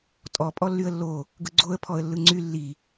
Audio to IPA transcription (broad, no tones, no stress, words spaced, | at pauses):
tʼɔ pʼɔlːyə̯lːo | ɡɯɡ͡ǀoə̯ pʰɔə̯lːɯŋ͡ǀy lːi